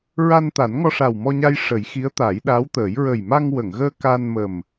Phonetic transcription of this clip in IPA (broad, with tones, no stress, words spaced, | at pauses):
ɹa˧nt̪a˨˩˦n ŋɔ˧ʂa˨˩wmɔ˧ɲa˧j ʂə˨˩˦j xi˧˥ə̯t̪a˨˩˦j ɗa˧˥wt̪əː˨˩˦j ɹə˨˩jma˧ŋwə˨˩˨ŋɣəː˧ ka˧nmə˨˩m